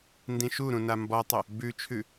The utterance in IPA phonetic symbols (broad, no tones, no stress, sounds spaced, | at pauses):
n d ĩ ʃ u ɾ ũ n a m b ɔ tˤ ʏ | b ʉ t͡ʃʰ ʉ